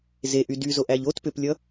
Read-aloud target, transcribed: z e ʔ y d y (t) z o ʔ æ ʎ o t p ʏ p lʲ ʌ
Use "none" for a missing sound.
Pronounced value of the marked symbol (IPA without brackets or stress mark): none